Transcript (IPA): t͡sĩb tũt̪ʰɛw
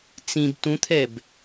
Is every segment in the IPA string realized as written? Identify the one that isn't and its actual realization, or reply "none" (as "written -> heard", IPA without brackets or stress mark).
w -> b